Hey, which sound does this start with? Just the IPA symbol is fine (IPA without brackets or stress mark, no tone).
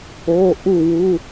o